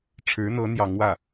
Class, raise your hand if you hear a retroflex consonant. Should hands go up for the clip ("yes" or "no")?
yes